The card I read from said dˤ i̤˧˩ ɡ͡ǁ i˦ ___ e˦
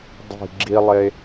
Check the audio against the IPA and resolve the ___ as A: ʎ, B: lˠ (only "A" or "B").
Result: B